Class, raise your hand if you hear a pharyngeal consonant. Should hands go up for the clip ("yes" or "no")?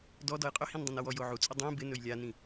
yes